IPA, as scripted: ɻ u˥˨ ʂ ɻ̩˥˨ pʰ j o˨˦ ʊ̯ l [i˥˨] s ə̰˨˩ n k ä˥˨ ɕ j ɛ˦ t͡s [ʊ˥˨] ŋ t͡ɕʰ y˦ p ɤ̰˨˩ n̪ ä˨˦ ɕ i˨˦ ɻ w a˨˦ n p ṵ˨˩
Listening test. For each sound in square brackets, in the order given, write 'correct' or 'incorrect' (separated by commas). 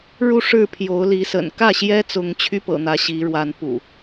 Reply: incorrect, incorrect